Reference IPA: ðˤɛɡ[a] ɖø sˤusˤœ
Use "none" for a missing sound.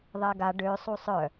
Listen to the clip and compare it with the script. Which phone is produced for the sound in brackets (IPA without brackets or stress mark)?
a